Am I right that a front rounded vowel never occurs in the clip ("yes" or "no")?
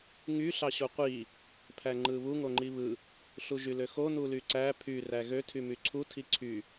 no